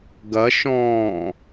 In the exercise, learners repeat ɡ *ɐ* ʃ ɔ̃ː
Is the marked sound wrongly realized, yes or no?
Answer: no